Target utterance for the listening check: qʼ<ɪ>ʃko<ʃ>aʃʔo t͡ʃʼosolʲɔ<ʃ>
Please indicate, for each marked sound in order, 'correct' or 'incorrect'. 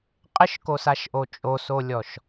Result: correct, incorrect, correct

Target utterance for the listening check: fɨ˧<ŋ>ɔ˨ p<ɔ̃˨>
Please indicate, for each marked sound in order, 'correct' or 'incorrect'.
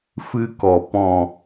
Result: incorrect, correct

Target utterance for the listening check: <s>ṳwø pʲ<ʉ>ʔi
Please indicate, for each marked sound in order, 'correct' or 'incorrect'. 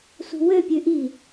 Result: correct, correct

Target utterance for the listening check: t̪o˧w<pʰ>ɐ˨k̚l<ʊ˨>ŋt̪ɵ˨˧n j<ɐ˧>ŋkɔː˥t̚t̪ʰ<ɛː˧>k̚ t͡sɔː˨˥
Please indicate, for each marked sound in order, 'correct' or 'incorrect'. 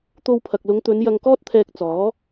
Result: correct, incorrect, correct, correct

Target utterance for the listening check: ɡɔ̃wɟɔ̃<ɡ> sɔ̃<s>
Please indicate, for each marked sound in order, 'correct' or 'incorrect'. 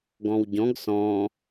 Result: correct, incorrect

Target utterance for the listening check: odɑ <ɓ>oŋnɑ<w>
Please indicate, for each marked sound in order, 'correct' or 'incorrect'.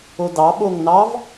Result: correct, incorrect

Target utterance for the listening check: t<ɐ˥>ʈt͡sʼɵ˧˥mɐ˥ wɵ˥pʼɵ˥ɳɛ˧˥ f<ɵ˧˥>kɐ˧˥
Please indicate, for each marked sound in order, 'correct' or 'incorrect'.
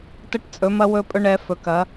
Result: incorrect, correct

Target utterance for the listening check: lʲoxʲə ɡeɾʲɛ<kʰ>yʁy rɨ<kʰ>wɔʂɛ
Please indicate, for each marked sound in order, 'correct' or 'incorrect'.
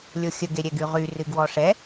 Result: incorrect, incorrect

